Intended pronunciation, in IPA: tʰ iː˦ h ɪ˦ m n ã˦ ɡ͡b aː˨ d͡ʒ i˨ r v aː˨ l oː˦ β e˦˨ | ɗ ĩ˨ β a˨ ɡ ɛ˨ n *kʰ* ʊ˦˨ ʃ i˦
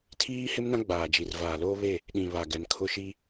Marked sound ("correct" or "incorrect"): correct